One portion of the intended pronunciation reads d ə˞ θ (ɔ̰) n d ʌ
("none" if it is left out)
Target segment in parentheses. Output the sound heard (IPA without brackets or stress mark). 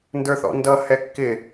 ɔ̰